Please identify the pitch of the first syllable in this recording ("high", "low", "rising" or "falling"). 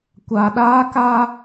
low